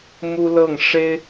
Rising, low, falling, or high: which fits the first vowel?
high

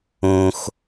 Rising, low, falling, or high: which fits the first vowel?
high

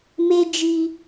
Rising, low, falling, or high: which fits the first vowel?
high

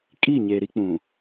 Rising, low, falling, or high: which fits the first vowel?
falling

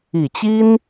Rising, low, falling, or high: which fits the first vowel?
low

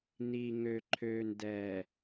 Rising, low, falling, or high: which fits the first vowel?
low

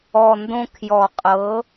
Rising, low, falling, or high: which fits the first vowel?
low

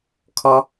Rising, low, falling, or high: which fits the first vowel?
high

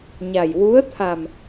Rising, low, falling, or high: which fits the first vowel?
low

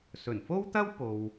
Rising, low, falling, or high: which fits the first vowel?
low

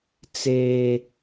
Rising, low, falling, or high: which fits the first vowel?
high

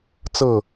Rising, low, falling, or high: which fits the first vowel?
falling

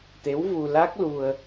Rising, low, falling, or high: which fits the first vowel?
rising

